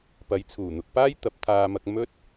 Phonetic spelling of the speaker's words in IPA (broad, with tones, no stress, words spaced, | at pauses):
pɐ˨˧jt͡sʰuː˨˩ n̪ʊ˨k̚paː˥j t̪ɐ˨˥p̚t̪ʰaː˧mɐ˧k̚ mɵ˥t̚